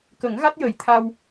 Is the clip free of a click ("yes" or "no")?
yes